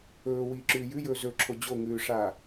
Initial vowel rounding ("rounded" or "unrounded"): rounded